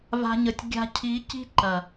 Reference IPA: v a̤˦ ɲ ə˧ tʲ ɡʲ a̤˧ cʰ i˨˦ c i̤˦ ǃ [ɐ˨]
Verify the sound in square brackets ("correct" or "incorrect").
correct